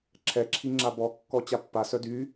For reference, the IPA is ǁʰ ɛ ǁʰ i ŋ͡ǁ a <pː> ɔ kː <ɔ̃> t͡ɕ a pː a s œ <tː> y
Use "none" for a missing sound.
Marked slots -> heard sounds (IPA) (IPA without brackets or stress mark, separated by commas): b, ɔ, d